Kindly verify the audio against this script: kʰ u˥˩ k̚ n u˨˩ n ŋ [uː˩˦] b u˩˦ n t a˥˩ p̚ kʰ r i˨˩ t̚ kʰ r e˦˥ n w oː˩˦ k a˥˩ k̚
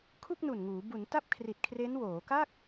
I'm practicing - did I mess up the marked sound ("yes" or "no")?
no